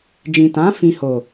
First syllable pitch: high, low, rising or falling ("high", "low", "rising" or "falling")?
low